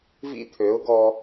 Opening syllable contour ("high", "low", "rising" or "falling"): high